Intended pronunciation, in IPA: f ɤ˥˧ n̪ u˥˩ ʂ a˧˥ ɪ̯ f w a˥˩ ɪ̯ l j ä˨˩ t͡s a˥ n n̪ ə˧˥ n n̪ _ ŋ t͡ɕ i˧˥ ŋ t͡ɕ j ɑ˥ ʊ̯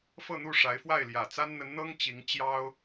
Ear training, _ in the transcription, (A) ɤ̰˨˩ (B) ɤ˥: B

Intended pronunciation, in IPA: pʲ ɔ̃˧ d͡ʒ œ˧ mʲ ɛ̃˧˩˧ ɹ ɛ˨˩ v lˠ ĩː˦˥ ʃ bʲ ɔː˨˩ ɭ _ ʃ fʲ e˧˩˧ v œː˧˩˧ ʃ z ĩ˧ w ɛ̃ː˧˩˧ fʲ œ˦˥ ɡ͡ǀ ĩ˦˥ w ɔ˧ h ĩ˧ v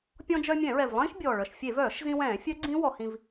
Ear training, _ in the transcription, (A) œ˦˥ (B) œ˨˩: B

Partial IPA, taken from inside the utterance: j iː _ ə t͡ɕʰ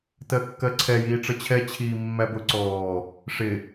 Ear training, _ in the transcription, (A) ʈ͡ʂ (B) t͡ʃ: A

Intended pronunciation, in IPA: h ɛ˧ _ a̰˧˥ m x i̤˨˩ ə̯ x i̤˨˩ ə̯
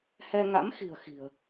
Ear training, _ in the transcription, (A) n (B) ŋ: B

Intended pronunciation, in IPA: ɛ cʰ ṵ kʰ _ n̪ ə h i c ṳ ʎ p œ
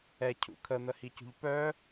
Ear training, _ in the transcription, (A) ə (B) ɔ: A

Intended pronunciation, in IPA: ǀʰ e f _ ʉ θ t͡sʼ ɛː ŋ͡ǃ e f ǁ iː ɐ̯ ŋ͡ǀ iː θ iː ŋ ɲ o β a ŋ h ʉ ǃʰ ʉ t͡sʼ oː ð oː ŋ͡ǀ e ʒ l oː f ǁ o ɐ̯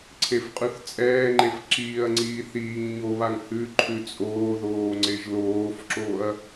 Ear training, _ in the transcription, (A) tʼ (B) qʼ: B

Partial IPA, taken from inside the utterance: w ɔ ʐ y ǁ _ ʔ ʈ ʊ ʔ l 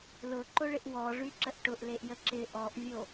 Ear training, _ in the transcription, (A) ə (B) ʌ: A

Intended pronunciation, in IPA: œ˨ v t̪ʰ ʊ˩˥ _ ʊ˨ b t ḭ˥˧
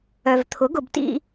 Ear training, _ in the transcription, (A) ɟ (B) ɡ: B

